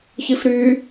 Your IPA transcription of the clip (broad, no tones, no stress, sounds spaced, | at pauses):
ç i f ɾ y